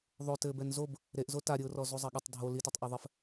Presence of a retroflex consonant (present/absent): absent